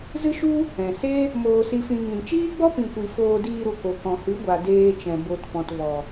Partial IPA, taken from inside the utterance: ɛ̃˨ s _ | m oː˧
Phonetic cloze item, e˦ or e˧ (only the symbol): e˦